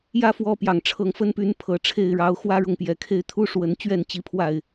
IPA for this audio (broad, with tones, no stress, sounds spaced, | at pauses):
j ä˦ f w ɔ˦ p j ɑ˨˩ ŋ ʈ͡ʂʰ ɤ˨˦ ŋ f ə˦ n p y˨˦ n pʰ ɤ˨˩ ʈ͡ʂʰ e˥˨ ɪ̯ ɻ ɑ˨˦ ʊ̯ x w ä˦ ɻ ʊ˥˨ ŋ p j ɛ˨˩ kʰ e˦ ɪ̯ t̪ʰ u˦ ʂ w ə˨˦ n t͡ɕ ɥ ɛ˥˨ n t͡ɕ i˨˦ pʰ w a˥˨ ɪ̯